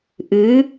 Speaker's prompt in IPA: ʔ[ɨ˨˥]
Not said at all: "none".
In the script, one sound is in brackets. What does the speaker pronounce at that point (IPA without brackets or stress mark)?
ɨ˨˥